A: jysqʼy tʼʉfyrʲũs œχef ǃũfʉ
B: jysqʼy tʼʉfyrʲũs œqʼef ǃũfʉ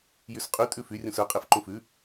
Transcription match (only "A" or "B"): B